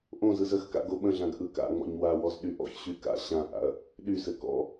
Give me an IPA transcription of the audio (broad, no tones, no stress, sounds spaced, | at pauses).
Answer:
ʔ õ z ɯ z ə x k a̰ ɡ o ɓ ə̃ ɮ ã ɡ ʔ ɯ k a̰ ŋ͡m ɔ̰ ɲ w a w ɔ z ɗ y ʔ ɔ̰ ç ɕ y k a̰ ɕ ã ʔ a̰ ɐ̯ | ɗ y s ɘ k ɔ̰